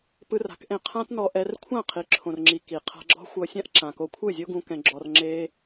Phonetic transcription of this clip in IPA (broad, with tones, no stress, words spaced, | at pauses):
pɯ˧ra̤˨˦kʔẽ˧ qʰã˦tnɔ˧ʔɛ˧rkʷʰã˦˨ qʰi˨ǁʰõ˨rŋ͡ǁi˨ ki˨ qʰa̤˧ɡ͡ǁɔ̤˦xʷɤ˧sʲã˦ʔ ǁã˨ko˧kʷʰɯ˦˨zʲo˦ ɡũ˧ kɛ̃˧ ɡ͡ǁɔ˧r ŋ͡ǁe˧